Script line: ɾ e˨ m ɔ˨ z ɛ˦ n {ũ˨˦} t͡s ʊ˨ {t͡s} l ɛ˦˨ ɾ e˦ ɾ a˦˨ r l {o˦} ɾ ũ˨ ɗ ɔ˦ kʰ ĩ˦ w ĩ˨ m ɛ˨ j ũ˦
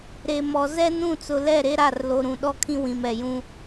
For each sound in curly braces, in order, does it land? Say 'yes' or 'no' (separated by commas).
no, no, no